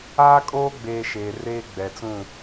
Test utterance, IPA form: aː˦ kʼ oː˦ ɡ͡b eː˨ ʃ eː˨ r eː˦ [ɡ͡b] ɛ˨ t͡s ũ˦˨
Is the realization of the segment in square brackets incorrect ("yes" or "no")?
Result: no